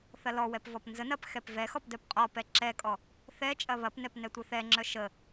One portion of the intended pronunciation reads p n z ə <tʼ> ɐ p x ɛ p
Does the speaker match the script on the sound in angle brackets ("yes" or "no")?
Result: no